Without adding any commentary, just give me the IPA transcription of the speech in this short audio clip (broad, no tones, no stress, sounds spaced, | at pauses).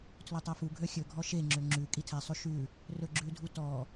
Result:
tʰ l ɵ tˤ ɛ f u ɡʱ ø xʲ ɵ ɡʱ ɔ ʃ e ŋ͡ǁ ø ŋ͡ǁ ʉ kʼ i tʰ ɛ sˤ ʉ ʃ ʉ | r ɵ ɡ͡ǁ ʉ dʱ u t ɔ